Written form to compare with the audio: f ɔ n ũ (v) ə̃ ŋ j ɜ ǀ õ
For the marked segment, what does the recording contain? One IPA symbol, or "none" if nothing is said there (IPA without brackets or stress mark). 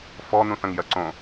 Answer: θ